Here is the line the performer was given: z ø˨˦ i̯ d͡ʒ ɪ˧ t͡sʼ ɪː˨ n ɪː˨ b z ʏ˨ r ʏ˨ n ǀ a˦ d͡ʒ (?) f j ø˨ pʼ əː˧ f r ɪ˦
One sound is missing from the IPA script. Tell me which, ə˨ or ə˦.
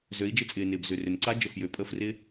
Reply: ə˨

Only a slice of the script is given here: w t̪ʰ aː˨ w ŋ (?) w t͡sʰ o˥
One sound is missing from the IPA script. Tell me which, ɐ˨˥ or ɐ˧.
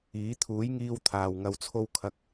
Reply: ɐ˧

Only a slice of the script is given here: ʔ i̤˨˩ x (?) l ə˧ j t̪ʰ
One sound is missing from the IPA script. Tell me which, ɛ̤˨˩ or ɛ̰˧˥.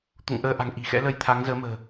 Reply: ɛ̰˧˥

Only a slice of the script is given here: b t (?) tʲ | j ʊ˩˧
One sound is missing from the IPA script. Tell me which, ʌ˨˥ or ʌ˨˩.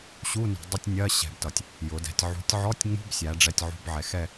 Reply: ʌ˨˩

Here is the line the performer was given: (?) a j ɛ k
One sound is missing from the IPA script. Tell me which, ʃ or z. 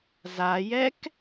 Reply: z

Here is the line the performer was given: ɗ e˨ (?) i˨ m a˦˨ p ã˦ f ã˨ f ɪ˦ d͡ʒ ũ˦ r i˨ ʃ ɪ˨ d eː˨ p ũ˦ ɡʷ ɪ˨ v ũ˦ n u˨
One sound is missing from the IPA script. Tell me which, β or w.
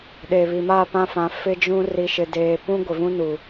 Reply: β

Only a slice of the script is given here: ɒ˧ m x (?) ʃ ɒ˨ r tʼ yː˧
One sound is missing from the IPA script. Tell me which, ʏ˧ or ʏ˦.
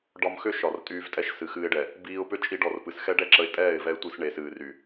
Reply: ʏ˦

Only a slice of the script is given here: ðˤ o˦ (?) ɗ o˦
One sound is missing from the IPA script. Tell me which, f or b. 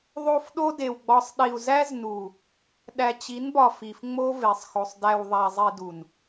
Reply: f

